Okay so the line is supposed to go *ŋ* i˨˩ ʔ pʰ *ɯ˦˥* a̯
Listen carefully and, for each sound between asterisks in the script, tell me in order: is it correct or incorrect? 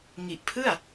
correct, incorrect: ɯ˥˩

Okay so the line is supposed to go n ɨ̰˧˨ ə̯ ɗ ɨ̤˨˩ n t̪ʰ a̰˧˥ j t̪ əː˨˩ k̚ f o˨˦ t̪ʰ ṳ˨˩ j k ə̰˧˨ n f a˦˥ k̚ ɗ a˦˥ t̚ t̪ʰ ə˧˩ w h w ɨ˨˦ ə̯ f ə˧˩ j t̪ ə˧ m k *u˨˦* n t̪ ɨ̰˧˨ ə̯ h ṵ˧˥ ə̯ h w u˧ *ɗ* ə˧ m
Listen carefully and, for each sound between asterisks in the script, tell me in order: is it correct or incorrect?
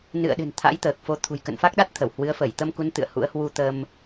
correct, incorrect: t̪

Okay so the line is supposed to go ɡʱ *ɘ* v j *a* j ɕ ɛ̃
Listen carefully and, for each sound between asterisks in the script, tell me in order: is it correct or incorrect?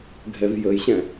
incorrect: ɛ, incorrect: ə

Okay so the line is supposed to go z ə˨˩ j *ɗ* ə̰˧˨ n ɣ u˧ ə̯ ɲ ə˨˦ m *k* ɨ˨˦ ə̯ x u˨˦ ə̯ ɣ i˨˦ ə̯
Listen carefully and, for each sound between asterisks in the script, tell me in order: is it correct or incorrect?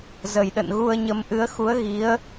correct, incorrect: ʔ

